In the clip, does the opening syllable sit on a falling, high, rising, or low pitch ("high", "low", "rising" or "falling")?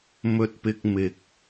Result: high